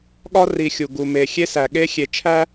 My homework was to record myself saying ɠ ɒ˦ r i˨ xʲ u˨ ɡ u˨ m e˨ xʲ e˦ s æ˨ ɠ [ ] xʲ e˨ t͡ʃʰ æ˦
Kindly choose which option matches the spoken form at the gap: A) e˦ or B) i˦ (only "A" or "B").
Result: A